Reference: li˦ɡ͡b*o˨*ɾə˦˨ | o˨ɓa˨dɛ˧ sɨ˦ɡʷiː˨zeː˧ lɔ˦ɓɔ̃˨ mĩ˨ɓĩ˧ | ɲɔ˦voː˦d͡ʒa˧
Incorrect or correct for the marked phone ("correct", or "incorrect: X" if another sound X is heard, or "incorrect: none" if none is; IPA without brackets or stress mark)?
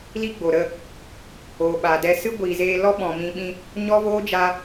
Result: correct